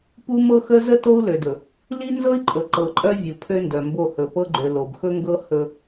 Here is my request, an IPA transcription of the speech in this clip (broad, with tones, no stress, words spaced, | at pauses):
pu˦mɤ˦xə˦ zə˦ to˦u̯lø˨dɵ˨ | li˦ nzɤ˦i̯ǃʼɵ˨ ǃɤ˨ǃʼœ˦ vʲu˨pʰø˦ndœ˨mbo˦˨ hɵ˨pɤ˦ɡ͡ǃø˨ lo˨bxɵ˦ŋɡɤ˦ hɵ˦